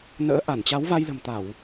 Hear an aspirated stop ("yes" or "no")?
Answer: no